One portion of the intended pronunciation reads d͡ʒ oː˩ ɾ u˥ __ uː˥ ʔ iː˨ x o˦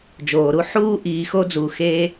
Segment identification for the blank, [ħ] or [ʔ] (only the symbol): ħ